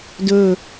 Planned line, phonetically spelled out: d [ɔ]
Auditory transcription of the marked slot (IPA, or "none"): ɵ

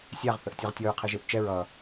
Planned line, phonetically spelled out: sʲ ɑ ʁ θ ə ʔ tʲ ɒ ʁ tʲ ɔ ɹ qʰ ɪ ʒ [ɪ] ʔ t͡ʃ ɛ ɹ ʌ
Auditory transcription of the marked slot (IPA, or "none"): ɪ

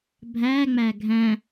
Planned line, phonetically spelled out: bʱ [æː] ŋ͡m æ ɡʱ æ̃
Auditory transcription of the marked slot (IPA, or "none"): æː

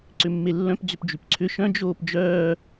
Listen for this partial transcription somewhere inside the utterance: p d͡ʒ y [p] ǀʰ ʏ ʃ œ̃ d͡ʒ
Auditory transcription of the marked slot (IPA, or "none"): p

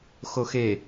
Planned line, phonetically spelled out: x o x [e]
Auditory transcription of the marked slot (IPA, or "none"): e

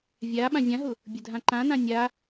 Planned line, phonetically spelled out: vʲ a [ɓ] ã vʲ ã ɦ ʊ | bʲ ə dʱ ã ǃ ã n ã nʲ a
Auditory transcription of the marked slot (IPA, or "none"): ɓ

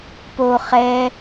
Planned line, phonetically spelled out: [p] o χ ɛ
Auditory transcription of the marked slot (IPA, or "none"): p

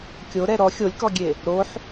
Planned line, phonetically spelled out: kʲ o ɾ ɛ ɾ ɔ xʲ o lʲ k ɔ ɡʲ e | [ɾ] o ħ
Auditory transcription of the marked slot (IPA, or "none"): ɾ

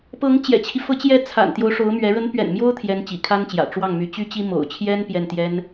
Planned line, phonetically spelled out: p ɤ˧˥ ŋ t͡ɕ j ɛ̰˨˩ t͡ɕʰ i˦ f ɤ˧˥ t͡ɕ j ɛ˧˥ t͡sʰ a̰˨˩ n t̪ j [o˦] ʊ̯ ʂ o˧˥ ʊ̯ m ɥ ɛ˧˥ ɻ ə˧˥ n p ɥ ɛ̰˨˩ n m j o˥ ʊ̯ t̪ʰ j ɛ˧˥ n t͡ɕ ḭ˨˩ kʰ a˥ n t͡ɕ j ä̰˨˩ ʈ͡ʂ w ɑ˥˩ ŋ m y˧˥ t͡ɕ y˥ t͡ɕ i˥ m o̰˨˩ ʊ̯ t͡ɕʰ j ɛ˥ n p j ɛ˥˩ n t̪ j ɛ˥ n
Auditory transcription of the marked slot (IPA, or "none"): o˦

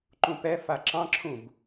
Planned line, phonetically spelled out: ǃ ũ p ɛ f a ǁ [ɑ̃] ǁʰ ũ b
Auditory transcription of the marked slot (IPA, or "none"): ɑ̃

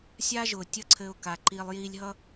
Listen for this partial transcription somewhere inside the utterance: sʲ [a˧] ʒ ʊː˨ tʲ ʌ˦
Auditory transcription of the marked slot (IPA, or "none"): a˦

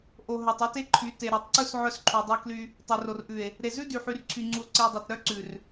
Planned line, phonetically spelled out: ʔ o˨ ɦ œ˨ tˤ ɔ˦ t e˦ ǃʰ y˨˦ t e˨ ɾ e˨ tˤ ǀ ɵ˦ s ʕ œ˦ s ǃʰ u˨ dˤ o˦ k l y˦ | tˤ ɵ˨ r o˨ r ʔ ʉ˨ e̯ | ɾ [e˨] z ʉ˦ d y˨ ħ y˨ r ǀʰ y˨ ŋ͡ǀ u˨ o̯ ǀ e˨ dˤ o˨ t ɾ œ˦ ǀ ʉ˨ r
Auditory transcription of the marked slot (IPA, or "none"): e˨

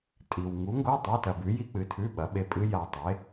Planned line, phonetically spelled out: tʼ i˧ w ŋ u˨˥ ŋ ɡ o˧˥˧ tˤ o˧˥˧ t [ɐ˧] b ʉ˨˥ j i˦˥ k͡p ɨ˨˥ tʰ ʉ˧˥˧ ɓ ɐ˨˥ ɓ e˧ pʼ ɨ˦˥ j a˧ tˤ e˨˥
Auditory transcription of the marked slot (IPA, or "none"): ɐ˧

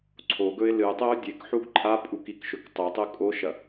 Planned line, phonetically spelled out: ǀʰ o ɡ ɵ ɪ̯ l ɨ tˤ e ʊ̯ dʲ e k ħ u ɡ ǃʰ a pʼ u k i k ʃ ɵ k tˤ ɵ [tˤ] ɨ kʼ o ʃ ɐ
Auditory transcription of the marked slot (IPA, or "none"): tˤ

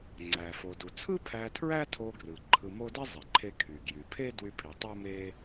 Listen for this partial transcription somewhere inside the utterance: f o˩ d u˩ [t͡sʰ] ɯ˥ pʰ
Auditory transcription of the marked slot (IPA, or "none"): t͡sʰ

